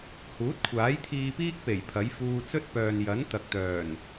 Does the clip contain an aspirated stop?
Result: yes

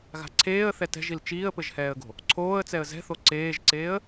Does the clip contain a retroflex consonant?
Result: no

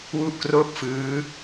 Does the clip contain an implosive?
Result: no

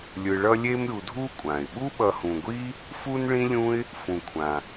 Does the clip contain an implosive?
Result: yes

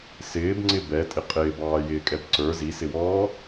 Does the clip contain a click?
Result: yes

